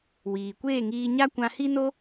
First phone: w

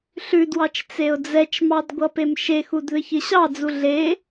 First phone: ɬ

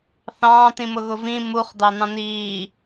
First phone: θ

